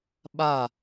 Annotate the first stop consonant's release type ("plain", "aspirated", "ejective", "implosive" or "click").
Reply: implosive